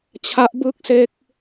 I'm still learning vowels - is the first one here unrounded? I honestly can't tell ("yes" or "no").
yes